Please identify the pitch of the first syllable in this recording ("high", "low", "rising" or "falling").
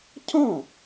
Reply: falling